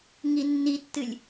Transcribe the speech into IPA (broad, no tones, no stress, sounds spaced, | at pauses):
ŋ i nː i tː ɨ lʲ